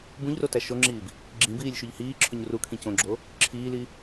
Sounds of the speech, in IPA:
bũʎrotæ ʃoŋ͡ǁiːb | ɡ͡ǁĩbiːlʲʃuʎ hiːǁʰoɲ rukʰĩ cõɡ͡ǁo | ǁʰiːli

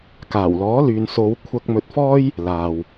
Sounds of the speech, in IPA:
kaː˨˩wlɔː˨˥lyː˨n so˨˧w kʷʰɐ˧k̚mɵ˧t̚fɔː˥j | laː˨w

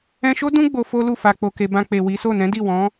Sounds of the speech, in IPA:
ɛ̃˧ʃo˦ dũ˦ ɡ͡bo˧fo˦lu˦˨ fa˨k͡po˨ke˨ bã˧k͡pe˨wi˨˦so˦˨ nɛ̃˨˦di˦˨ wɔ̃˨˦

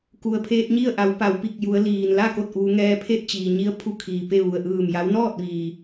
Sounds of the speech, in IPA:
ku˩ə̯pʰeː˧t̚ ɲi˥˨ə̯ʔa˩˧w pa˩˧wpi˧˩k̚ju˩˧ə̯liː˩n la˥˨ ko˥˨t̚ʔuː˩˧ŋɛː˧ pʰe˥˨t̚t͡ɕiː˩ɲi˧ə̯pʰu˧ kʰiː˩pe˥˨ ʋu˩ə̯ʔɯː˧˩mja˧˥w nɔː˥˨t̚ʋiː˩

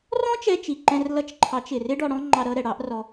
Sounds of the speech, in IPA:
rɔ̃˦t͡ʃɛ˧t͡ʃi˨ ǃɛ̃˧r lʌ˧t͡ʃǃʰɑ˨˦t͡ʃɪ˨ rɪ˦ɖɔ˧ɽɔ̃˦ ŋ͡ǃɑ˧ɾʌ˧ ɾɛ˨ɽɑ˨˦ʔ rɔ˦

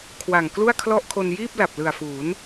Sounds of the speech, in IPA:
kʰwa˨˩ŋ klu˥˩a̯kʰlɔ˥˩ʔkʰo˧n jiː˥˩p̚la˨˩p̚lɯ˨˩a̯fuː˩˦n

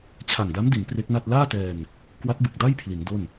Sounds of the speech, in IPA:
t͡ɕʰa˨˩ŋda˦˥mdi˩˦n pre˦˥k̚na˥˩t̚ laː˥˩tɛː˧n | kwa˦˥t̚bɯ˨˩k̚da˥˩j pʰli˩˦ndo˥˩n

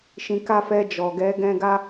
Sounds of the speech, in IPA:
ʃĩ˧ka˦fɛ˧ d͡ʒɔ˨ ɡɛ˨˦ ɡɛ̃˦ɡa˦

